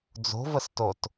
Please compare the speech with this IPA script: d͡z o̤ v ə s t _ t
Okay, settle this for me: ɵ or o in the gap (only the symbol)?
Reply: o